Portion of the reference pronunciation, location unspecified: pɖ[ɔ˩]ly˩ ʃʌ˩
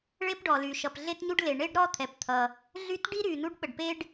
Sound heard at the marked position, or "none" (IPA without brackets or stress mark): ɔ˩